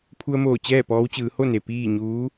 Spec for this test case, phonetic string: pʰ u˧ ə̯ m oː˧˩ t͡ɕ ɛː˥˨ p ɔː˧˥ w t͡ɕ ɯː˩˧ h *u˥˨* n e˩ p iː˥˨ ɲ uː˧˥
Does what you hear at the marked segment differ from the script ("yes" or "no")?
yes